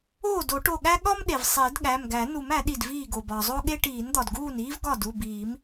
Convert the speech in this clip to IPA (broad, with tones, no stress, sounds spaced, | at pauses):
oː˥˩ d o˨˩˦ ʈ o˧˩ ɠ æ˥ ɠ ɒ˥ m ɗ e˩ v sˤ i˨˩˦ d ɠ æ˩˧˩ m ɡ æ˨˩˦ n u˨˩˦ m æ˨˩˦ ɗ i˧˩ d v iː˥˩ ɡ o˩ b ɒ˩ zˤ o˥ ɠ e˥ ʈ iː˨˩˦ n d̪ ɒ˩ d ɡ uː˥˩ n iː˥ v ɡ ɒ˥˩ d u˩˧˩ b iː˨˩˦ m